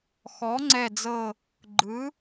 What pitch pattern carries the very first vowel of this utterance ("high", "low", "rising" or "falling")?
rising